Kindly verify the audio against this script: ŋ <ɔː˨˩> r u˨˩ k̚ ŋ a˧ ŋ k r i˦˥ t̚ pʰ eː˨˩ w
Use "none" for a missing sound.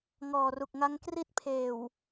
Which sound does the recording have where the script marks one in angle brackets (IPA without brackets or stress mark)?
ɔː˨˩